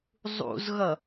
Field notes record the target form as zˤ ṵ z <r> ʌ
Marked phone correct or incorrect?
incorrect